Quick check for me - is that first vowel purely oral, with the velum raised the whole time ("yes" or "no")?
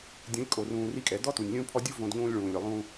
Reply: no